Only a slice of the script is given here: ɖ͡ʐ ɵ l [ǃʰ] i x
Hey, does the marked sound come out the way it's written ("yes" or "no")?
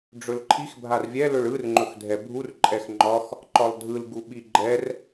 yes